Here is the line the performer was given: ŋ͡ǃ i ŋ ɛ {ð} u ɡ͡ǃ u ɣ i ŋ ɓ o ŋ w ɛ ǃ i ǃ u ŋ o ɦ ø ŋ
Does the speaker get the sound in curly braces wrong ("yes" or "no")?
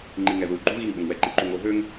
no